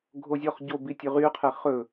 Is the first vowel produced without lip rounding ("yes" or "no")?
no